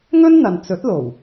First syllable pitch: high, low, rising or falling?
high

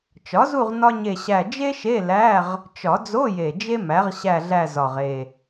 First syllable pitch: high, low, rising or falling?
rising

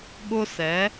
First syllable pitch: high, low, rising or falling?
high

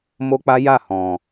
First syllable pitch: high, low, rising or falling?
high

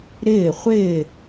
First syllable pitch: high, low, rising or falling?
falling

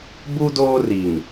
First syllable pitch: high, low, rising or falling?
high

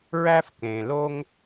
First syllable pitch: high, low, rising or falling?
high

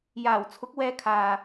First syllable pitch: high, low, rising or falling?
low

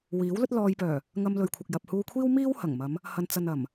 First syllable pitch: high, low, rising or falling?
rising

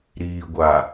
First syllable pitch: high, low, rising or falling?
low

